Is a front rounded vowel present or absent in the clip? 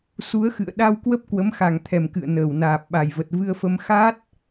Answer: absent